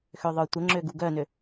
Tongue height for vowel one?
mid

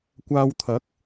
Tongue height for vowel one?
low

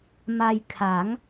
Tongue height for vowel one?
low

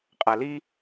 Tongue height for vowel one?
low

